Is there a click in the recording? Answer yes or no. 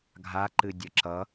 yes